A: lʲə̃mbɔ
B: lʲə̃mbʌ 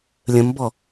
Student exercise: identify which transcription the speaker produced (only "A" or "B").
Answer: A